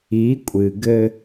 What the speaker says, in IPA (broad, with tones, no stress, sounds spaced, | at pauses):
i˨˦ kʷʼ ɨ˨ ɡ ɘ˦